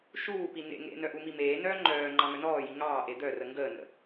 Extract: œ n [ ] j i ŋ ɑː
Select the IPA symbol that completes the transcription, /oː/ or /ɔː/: ɔː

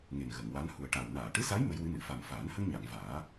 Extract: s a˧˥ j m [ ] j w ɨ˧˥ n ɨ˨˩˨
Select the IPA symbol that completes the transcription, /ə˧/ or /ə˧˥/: ə˧˥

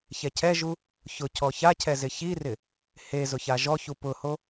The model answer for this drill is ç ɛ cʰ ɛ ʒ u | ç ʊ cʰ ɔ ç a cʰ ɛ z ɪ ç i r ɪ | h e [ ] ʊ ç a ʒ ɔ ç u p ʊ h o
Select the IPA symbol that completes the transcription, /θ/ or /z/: z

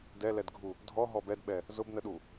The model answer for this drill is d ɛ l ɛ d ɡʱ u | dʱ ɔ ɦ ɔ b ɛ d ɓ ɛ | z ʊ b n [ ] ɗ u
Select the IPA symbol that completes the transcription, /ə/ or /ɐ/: ə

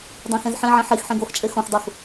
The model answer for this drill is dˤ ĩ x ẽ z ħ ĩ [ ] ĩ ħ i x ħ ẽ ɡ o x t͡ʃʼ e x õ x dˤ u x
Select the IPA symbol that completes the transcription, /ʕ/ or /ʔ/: ʕ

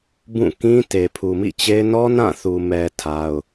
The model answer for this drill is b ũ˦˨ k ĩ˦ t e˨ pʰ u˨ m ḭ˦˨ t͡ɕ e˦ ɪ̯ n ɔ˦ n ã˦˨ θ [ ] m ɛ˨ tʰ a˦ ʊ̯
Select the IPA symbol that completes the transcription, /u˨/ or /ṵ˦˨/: u˨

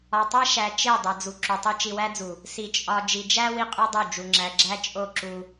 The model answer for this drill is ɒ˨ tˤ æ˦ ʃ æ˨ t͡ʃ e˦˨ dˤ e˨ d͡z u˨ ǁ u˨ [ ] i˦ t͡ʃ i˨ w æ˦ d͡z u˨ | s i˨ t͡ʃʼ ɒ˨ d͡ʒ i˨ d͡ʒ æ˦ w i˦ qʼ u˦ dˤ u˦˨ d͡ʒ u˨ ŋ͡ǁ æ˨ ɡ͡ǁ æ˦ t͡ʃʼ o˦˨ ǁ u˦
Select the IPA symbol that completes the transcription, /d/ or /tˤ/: tˤ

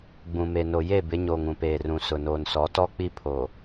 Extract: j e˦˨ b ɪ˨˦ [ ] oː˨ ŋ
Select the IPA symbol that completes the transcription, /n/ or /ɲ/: ɲ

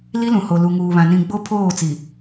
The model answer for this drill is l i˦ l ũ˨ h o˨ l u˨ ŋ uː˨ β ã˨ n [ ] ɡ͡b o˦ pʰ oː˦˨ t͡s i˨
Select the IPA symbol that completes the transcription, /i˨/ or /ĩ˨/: ĩ˨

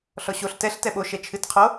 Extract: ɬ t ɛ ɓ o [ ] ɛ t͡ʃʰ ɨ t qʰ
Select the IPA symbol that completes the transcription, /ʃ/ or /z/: ʃ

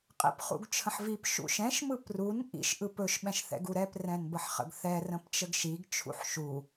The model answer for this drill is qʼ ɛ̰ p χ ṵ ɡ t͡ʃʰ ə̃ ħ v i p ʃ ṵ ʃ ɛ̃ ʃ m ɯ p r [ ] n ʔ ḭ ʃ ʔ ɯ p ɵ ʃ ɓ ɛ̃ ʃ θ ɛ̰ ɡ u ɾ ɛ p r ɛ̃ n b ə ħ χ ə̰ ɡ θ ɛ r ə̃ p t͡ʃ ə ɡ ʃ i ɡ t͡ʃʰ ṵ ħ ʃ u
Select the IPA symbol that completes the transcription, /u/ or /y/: u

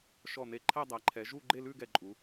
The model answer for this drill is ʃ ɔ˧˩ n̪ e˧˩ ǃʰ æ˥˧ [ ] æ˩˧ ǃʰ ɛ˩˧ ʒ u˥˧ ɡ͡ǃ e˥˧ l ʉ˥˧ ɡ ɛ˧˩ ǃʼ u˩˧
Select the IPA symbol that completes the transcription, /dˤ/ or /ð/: dˤ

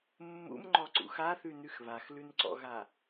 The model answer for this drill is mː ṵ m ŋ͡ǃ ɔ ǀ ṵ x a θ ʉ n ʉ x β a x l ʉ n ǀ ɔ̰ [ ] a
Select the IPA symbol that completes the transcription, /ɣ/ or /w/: ɣ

